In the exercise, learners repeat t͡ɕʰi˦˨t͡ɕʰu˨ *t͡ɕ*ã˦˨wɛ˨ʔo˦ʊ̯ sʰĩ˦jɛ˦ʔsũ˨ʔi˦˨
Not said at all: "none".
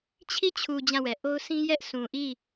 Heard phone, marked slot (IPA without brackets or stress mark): d͡ʑ